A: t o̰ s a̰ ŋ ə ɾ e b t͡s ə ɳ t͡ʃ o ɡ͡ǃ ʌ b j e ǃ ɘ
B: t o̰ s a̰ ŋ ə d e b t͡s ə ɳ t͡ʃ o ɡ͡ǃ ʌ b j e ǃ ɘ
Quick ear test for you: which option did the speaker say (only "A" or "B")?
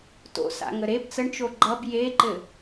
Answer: A